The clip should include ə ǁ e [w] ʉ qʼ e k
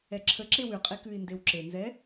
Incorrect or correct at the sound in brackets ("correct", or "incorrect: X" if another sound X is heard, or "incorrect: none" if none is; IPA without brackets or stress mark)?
correct